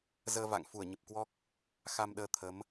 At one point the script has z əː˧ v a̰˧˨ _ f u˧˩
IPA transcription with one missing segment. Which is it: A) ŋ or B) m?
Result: A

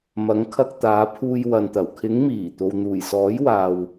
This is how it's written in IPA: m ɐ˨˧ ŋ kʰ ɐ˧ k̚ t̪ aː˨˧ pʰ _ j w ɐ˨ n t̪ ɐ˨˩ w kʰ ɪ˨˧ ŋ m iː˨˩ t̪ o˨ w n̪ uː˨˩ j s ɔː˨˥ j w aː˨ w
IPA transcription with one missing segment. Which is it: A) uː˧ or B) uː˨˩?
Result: A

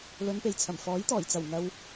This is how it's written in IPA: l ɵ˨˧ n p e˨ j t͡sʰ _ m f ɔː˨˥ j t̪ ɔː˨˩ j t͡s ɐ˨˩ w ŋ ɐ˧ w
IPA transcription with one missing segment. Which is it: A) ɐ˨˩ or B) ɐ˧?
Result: A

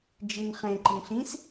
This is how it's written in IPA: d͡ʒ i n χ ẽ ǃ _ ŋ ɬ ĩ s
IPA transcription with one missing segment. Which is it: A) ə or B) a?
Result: A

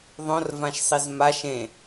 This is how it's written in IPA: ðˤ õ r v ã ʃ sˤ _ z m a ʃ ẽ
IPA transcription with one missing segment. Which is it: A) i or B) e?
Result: A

